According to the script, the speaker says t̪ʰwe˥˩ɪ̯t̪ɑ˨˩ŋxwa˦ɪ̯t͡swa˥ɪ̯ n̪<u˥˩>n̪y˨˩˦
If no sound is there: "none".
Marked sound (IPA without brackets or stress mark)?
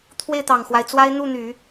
u˥˩